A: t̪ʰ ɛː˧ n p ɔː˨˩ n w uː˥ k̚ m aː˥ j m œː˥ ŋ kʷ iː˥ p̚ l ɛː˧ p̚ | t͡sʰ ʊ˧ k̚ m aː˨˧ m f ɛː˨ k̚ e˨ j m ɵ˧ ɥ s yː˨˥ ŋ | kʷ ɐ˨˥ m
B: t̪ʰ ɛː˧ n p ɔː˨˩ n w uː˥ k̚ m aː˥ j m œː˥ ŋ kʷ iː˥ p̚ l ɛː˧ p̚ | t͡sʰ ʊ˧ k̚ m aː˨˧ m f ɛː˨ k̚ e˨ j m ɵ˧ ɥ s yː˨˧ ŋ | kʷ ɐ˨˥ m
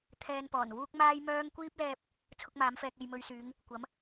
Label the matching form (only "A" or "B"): B